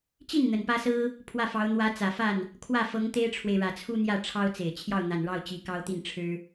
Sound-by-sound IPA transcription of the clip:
t͡ɕ i˥˩ n n̪ ə˨˩ n p ä˥ s ɹ̩˥ | pʰ w ä˥˩ f ɑ˧˥ ʊ̯ n̪ w ä˧˥ t͡s ä˨˩ f a˥˩ n | kʰ w ä˥˩ f ɤ˧˥ ŋ t̪ e˥ ɪ̯ ʈ͡ʂʰ w e˨ ɪ̯ ɻ ä˨˩ t͡sʰ u˥ n̪ j ä˥˩ ʈ͡ʂʰ ɑ˥ ʊ̯ t͡s e˨˩ ɪ̯ t͡ɕʰ j ɑ˥˩ ʊ̯ n̪ a˨˩ n ɻ ɑ˥˩ ʊ̯ t͡ɕ i˧˥ k ɑ˥ ʊ̯ t̪ i˥˩ n ʈ͡ʂʰ ɻ̩˥

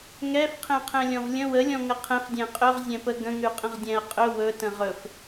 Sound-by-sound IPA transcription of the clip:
ŋ ɛ f qʰ ɛ̃ qʰ ɛ̃ lʲ ɔ̃ v lʲ ə̃ w ə lʲ ɔ̃ ŋ ə qʰ ɛ̃ f dʲ ɛ̃ qʼ ɵ ʁ zʲ ɛ̃ p ə ɡ ə̃ ŋ ʉ qʼ ə̃ ʁ dʲ ɛ̃ ɐ̯ qʼ ɵ w ɵ t ə̃ ʁ ɵ f

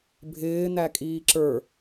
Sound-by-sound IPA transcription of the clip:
bʱ ɪː n̪ æ kʼ iː ǁ ə˞

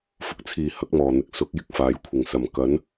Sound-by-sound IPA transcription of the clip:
f ʊ˨ k̚ t͡sʰ iː˨˩ h ɐ˨˥ k̚ m ɔː˨˩ n̪ ɪ˨ k̚ s ʊ˨˥ k̚ j ɪ˥ k̚ f aː˨ j kʷʰ ɪ˨˩ ŋ s ɐ˨˩ m k ɐ˨˥ n

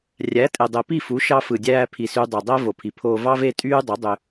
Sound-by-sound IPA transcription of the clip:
rʲ æ˨˦ tʼ e˨ dˤ e˨ p i˦˨ f u˨˦ ʃ ɑ˧ f ɯ˨ dʲ æː˧ pʰ i˨ s y˧ dˤ y˨ dˤ æ˦ v o˨ pʰ i˨ pʰ oː˧ v ɑ˦ v e˦ tʼ yː˦ dˤ o˨˦ dˤ ø˧

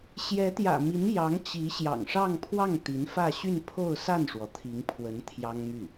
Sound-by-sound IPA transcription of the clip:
ɕ j ɛ˧˥ t̪ j ä̰˨˩ m i˧˥ n j ɑ˧˥ ŋ t͡ɕ i˧˥ ɕ j ɑ̰˨˩ ŋ ʂ ɑ˥˧ ŋ pʰ w ɑ˥˩ ŋ t̪ i˧˥ n f ä˥˧ ɕ y˥˧ n pʰ o˥˧ ʊ̯ s a˥˩ n ʂ w ɔ˩ t̪ʰ i˧˥ ŋ pʰ w ə˧˥ n t̪ʰ j ɑ˥ ŋ m y˥˩

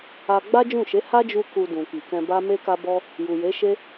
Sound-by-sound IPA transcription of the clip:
a˧ ɡ͡b a˦ d͡ʒ ũ˦˨ ʃ e˨˦ h a˦ d͡ʒ u˧ k u˧ d ũ˨ k i˨ k ɛ̃˧ b a˦ m e˦ k a˦ b ɔ˦ | j u˨ j e˨˦ ʃ e˦

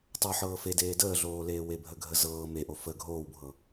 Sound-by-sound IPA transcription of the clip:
tˤ ɤ ħ ɤː f e d eː d əː ɮ oː l eː w e bʱ ə ɡʱ ə z ɤː m e ʔ o f ə ɡʱ oː w bʱ ɤ

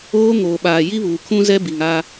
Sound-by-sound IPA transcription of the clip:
oː˦ ŋ oː˨ ɓ aː˨ j i˦ β uː˨ kʰ ũ˦ z ɛ˦ b i˨ ŋ a˦

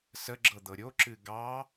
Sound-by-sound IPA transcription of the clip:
s ə ɡ͡ǁ ɤ d̪ ɤ ɾʲ o ǁ ɨ ɡ ɑ

